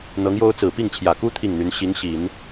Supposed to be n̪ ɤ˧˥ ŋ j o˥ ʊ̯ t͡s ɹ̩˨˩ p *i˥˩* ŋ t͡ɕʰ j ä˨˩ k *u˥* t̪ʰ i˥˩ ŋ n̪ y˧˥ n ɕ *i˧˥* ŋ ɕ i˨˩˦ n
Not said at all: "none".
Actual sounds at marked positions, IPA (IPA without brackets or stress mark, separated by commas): i˥˩, u˥, i˧˥